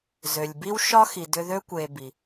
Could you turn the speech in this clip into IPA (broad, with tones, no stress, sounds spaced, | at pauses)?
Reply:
z ø˩ lʲ b i˦ w ʃ ɒ˦ x i˩ d ʏ˦ ð ø˥ kʷ e˨ b i˩